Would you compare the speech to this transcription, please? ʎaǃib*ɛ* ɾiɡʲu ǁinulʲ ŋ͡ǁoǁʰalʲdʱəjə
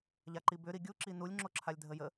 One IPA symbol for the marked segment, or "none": ʏ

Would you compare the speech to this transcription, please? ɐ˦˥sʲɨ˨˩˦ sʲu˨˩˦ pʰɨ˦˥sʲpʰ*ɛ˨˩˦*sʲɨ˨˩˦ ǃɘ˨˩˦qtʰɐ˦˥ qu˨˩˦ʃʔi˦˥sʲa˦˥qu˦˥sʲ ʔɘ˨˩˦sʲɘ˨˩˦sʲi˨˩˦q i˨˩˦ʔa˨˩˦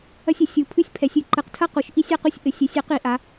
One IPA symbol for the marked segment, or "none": ɛ˨˩˦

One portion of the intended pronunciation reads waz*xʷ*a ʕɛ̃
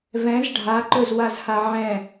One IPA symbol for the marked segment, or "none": h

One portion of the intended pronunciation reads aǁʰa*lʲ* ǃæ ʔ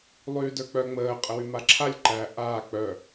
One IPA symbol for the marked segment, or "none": lʲ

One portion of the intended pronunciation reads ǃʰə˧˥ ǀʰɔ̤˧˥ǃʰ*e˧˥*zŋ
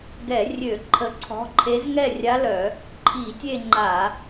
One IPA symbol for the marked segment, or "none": e˧˥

